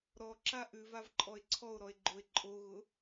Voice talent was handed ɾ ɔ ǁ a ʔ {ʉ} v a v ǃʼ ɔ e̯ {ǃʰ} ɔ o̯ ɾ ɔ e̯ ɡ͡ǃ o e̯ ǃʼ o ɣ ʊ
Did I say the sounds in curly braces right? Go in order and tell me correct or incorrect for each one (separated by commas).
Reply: correct, incorrect